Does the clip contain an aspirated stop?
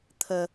yes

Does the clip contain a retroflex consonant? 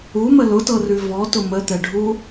yes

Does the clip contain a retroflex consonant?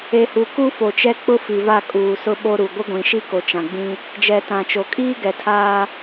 no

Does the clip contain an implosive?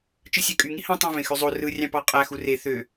no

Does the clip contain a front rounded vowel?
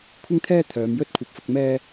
yes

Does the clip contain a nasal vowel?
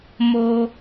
no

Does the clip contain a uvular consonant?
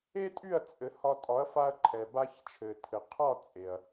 yes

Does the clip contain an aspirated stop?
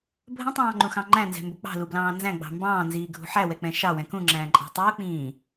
no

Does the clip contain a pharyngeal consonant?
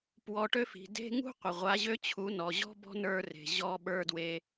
no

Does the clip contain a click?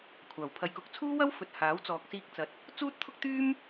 no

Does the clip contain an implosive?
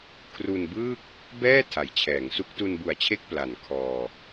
no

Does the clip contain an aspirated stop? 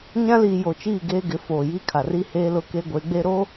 yes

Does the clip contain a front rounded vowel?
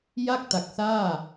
no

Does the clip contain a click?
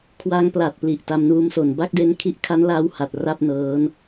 no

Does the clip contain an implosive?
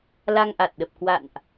yes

